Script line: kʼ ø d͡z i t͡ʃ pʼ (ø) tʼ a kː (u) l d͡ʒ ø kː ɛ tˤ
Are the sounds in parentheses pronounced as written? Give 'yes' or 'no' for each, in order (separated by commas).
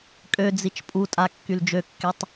no, no